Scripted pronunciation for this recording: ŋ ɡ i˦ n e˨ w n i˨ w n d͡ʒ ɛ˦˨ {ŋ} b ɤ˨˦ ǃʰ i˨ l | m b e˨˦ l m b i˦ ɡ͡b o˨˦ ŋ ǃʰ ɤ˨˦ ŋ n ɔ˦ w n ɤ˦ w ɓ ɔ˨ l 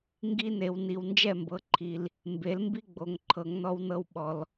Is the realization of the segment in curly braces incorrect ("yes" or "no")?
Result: yes